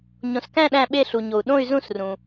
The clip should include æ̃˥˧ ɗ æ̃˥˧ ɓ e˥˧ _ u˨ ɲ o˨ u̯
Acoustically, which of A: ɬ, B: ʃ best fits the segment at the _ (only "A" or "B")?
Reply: A